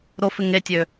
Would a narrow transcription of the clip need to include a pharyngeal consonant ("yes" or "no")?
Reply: no